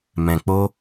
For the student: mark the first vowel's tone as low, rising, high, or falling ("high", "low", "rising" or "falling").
low